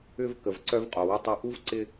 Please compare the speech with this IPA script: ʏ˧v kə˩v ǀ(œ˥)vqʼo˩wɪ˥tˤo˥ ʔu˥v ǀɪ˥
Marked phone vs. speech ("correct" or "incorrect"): correct